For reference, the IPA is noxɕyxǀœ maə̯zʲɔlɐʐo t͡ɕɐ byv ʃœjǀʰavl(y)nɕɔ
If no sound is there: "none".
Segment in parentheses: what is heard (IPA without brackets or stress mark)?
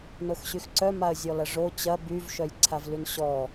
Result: y